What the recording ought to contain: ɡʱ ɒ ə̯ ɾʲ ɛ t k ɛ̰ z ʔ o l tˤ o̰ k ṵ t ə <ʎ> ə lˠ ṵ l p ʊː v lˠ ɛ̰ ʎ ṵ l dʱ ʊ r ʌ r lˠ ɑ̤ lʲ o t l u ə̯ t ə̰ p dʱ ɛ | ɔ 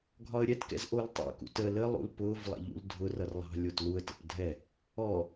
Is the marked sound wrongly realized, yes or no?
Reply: yes